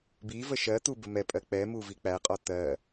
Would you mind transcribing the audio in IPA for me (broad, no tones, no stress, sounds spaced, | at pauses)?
b i v ə ʃ ɜ t̪ u b ə m ɛ pʼ ɜ k͡p ɛ m u v i k͡p æ qʼ ɔ t̪ ɜ